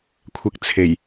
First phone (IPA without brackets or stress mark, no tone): kʷʰ